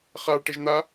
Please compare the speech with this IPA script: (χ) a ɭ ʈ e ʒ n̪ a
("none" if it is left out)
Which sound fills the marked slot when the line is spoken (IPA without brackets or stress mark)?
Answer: χ